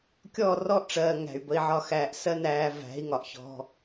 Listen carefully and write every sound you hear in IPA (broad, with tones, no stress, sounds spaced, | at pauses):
kʲ ɔː˦˨ r ɔ˦ ʔ ʈ͡ʂ ɜː˨ ŋ æ̤˨ y̯ b ə˧ i̯ ʕ ɒ˦˨ x æː˧ ʔ s ɜ˦ n æː˧ v æ̤˨˦ i̯ ŋ ɒ˨ ʔ ç ɔ̤˦